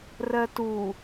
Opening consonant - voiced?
yes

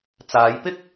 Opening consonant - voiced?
no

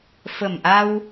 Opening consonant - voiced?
no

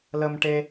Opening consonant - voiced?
yes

